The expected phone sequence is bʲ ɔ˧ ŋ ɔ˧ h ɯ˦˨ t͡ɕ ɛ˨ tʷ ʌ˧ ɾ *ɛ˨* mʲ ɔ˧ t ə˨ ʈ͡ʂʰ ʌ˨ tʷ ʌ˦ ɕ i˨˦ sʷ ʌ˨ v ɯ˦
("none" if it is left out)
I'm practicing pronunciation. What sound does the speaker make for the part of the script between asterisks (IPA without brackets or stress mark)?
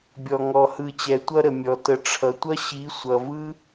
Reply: ə˨